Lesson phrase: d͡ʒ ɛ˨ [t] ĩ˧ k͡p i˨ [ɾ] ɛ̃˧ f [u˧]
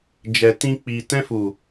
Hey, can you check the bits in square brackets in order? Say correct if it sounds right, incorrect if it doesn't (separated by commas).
correct, incorrect, incorrect